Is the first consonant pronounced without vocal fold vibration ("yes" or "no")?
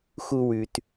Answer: yes